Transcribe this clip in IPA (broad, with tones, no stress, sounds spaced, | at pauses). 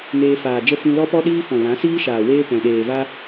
ŋ eː˧ f aː˨ d͡ʒ ə˦ f ĩ˧ l ɔ˦ p ɔ˦ ɗ iː˦ f ɔ̃˨ l ã˨˦ s iː˦ ʃ aː˨ w eː˦ p ɛ̃˨ ɗ eː˨ v a˦